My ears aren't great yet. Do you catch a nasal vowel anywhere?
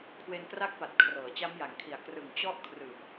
no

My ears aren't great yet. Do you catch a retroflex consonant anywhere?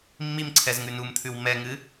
no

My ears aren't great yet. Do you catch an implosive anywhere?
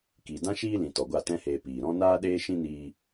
yes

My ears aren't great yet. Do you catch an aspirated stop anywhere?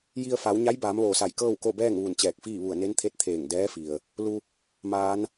yes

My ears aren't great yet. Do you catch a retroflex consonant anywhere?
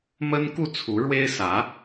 yes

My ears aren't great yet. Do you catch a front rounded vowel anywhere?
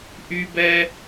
yes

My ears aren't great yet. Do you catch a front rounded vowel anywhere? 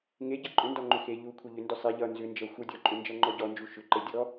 yes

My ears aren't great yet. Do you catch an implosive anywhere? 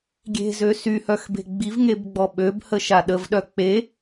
yes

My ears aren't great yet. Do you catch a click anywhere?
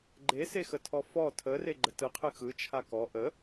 yes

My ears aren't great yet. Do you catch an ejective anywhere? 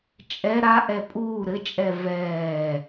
yes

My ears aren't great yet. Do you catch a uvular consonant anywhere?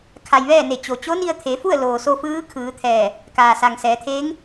no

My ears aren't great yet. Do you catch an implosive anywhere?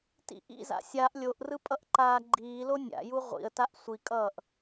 no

